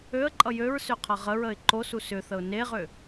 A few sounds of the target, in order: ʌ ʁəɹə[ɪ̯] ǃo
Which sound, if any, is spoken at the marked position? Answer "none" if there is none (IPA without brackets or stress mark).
ɪ̯